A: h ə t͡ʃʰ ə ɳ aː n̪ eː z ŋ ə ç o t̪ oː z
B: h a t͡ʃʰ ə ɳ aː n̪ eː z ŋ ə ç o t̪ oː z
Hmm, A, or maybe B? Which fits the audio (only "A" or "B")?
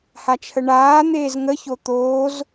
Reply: B